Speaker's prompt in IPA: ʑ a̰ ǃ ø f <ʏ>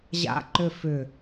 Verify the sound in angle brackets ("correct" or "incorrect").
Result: correct